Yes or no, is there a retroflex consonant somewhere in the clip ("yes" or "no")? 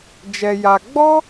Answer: no